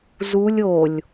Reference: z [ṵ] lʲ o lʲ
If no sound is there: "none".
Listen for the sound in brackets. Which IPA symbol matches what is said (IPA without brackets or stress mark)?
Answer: u